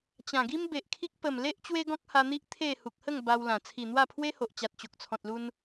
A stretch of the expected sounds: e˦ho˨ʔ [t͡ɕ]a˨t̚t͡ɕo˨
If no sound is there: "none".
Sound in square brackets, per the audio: t͡ɕ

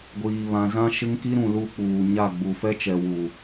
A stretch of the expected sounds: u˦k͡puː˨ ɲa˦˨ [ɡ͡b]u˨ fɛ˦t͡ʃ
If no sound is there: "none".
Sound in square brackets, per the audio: ɡ͡b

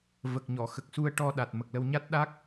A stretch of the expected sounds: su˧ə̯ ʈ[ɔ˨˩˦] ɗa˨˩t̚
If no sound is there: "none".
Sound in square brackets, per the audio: ɔ˧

